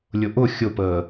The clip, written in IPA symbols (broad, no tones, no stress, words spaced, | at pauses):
lʲʊʔʊ xʲʊpəː